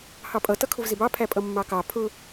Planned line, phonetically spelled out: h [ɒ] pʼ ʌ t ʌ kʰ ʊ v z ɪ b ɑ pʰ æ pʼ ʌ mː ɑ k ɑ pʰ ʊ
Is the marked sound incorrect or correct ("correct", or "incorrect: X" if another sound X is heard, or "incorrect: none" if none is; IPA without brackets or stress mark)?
incorrect: ɑ